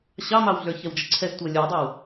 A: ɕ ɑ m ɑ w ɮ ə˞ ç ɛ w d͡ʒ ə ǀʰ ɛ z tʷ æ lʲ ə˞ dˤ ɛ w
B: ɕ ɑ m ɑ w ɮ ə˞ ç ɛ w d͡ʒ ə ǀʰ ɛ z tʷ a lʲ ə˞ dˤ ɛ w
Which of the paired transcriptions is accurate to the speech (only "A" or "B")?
A